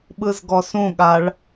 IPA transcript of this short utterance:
ɓɯzɡɔsũɠaɭ

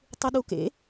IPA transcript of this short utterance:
tˤɯɗukḛ

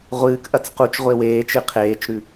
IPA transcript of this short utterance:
ʁʷɨːkʔɐt͡s qut͡ʃ ʁʷeweːt͡ʃɨ qʰeːt͡ʃɾʉ

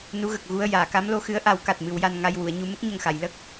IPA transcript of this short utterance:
nu˧˥ɣə˨˩k̚ ɣu˧ə̯ jaː˨˩˨ka˧˥mlo˧xɨ˧˥ə̯ ʔa˨˩˦wka˨˩t̚ mɨ˨˩˦wja˧n ŋa˧jwu˨˩˨ə̯ɲu˧ mə˦˥k̚ɲə˨˩ŋxa˨˩˨j lə˦˥k̚

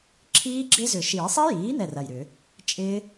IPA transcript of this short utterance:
ǁʰiː˦˥ ɡ͡ǁɪ˦˥zʏ˨˩˦ ʃiː˨˩˦ sˤi˦˥jiː˩˥n̪ɛ˧˩ rɐ˧˩jɾʏ˨˩˦ | t͡ʃʼɪː˦˥

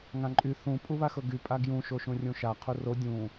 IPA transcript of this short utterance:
ŋãǃʼy θũ pʼuβaxɤɡy pʼaɡjũ ʃoʃũrʲũʃa qʰuro dʲũ

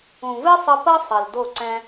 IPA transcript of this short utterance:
ũ˨vɨ˦sˤɘ˧ pɐ˦ sˤɘ˨ldo˦˨ ǀɛ̃˧

